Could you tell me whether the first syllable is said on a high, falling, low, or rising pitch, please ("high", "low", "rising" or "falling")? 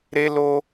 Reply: high